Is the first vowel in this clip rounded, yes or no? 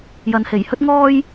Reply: no